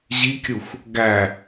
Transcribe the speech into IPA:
ʑ i kʲ u xʷ | ɡ æ

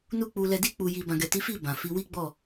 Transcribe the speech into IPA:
n u˦ k͡p u˧ l ɛ˧ d i˧ k͡p u˨ j i˨ b ã˨ ɡ ɛ˨ t i˨˦ f i˦˨ b ã˨ f i˨˦ w i˦ ɡ͡b ɔ˦˨

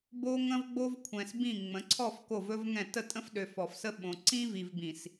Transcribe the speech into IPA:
b o˦ ŋ ə̃˦ v ɡ͡b o˦ v kʷʰ ɛ̃˨ s b ĩ˦˨ ŋ͡m ə̃˨˦ ǀʰ ɔ˦˨ f k o˦˨ v ɵ˦ v ŋ ɛ̃˦˨ t ə˦˨ tʼ ə̃˦ f ɗ ø˨ f ɔ˨ f s ə˦ ɓ õ˨ ǀ ĩ˦ v i˨ v b ĩ˨ s

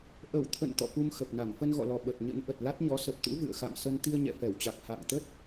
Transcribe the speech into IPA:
ʔ ə˧˩ w t̪ʰ ə̰˧˨ n t̪ ɔ̰˧˨ f u˧ m x ə˨˩ p̚ n a˧˩ m f ə˧ n ɣ ɔ̰˧˨ l ɔ˨˩ ɓ ə˨˩ t̚ ɲ ə̰˧˥ n ʔ ə˨˩ t̚ l a˦˥ t̚ ɲ ɔ˨˦ s ə˨˩ p̚ t̪ ṵ˧˥ v ɨ̰˧˨ ə̯ x a̰˧˨ m s ə˧ n t̪ i˧ ə̯ ɲ ɛ̰˧˨ f ɛ˧˩ w t͡ɕ a˨˩ k̚ h a̰ː˧˨ ŋ t̪ ə˦˥ t̚

